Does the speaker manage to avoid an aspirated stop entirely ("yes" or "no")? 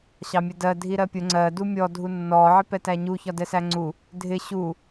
yes